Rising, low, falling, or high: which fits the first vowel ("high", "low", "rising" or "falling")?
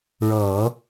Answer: low